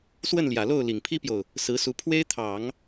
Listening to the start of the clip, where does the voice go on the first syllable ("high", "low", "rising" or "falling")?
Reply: falling